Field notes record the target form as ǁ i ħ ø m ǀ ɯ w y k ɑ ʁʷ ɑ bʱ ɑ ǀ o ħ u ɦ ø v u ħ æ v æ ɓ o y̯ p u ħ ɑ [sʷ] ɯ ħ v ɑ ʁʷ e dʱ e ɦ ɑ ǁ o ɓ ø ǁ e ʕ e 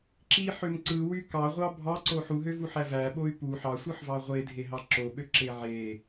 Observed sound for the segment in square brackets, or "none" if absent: sʷ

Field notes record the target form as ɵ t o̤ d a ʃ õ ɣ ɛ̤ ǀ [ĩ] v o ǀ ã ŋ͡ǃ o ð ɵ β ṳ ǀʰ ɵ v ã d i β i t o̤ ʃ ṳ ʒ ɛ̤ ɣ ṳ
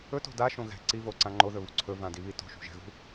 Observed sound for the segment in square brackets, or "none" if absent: i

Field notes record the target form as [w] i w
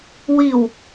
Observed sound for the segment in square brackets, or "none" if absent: w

